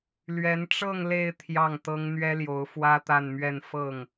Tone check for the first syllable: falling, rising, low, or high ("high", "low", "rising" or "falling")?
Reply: rising